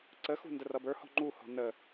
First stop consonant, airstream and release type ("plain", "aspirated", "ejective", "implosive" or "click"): click